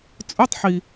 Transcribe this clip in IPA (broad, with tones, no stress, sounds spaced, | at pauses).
t͡sʼ ɵ˧˥˧ tˤ ħ i˩